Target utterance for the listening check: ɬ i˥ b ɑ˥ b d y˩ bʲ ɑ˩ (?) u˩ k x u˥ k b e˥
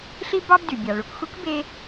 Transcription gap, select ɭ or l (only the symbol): ɭ